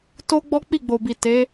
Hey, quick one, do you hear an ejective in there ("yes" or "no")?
no